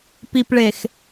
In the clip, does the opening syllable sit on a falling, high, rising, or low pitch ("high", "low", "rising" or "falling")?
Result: low